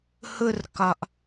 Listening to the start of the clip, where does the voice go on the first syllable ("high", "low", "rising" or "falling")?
high